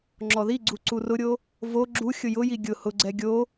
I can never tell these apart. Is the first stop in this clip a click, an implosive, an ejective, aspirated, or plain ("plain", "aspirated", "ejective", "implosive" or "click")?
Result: click